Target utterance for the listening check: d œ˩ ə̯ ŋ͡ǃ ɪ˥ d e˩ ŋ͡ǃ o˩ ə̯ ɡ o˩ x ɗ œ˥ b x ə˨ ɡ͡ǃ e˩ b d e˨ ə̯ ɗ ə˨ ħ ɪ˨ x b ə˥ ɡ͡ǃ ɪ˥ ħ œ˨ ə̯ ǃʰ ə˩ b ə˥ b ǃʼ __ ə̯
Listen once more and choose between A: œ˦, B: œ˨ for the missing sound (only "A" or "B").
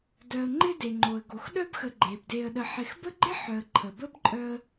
A